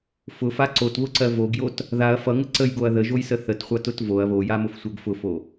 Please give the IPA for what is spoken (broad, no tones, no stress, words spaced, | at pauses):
fʊfa ǀotβʊǀɜ voɡjot | ðaɐ̯ fʌŋə ǀəjɡoɐ̯ ðəʒojsə θətχʷʌtʊt voɐ̯ βojamʊfsʷɜɡ fʊfo